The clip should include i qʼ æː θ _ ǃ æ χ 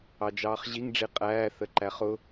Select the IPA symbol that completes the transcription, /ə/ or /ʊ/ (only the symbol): ə